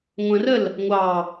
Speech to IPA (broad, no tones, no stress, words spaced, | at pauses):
ŋʷə̃rəl | ŋʷɑ